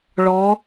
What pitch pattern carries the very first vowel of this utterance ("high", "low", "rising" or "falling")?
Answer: rising